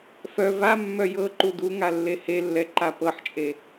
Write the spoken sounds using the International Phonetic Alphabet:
f œ v a mː œ j ɤ ǃ u d u ŋ a lː e h e lː ɛ ǃ a p ɤ ħ t͡ʃʼ e

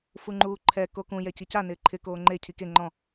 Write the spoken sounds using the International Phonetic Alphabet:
f u ŋ͡ǃ uː ǃʰ ɛ k o k ũ j ɛ c i c a n ɪː ǃʰ ɪ k oː ŋ͡ǃ e cʰ i k e ŋ͡ǃ ɔ̃

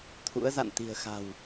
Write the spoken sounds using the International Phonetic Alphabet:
t̪ʰ ṵ˧˥ ə̯ z a̰˧˨ n t̪ i̤˨˩ ə̯ x a̤˨˩ w

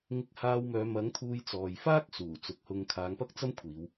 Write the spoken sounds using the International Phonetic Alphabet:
ŋ ɪ˧ k̚ h aː˧ w m œː˨˧ m ɐ˨˥ ŋ t̪ʰ uː˧ j t͡s ɔː˨ j f aː˥ k̚ s uː˨˩ t͡s ʊ˨˥ k̚ h ʊ˧ ŋ kʰ aː˨˧ ŋ p ɐ˥ k̚ t͡s ɐ˥ m kʷʰ iː˨˧ w

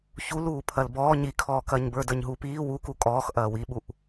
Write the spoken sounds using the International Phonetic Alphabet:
ç u l uː pʰ ɐ l b ɔː ɲ i kʰ ɔː k ɐ ɲ b ə˞ d ə˞ ɲ ɦ uː p iː w u k u kʼ ɔː x ʔ ɐː w i ɓ u ʔ

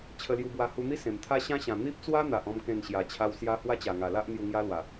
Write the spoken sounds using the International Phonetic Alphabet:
t͡ɕʰ ə˧ l j u˧ b w a˧ h u˧ n̪ i˦ s ẽ˨˩ m t̪ʰ a˦ ɕ ã˦ ɕ ã˨˩ n̪ i˦ p̚ t͡s w a˦ n̪ a˨ ʔ ɔ̃˥˧ m k ẽ˥˧ n ɕ j a˧ t͡ɕʰ a˦ w s j a˦ h w a˦ t͡ɕ a˨˩ ŋ a˨˩ l a˦ ʔ n̪ j u˧ ŋ j a˦ l w a˨˩

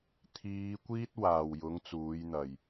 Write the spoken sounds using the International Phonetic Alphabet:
t̪ʰ iː˨˧ kʷ iː˥ t̚ w aː˨˩ w j ʊ˨˥ ŋ t͡s uː˨˥ j n̪ ɐ˨˩ j

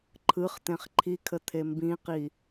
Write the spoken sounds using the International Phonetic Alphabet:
ǃʰ ɯ χ t̪ ẽ χ ǃʰ i kʰ ə t̪ʰ e m b ĩ q i

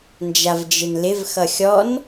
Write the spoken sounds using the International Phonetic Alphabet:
n d͡ʒ a v d͡ʒ ɪ n l ɪ v x ʌ xʲ ɔ n

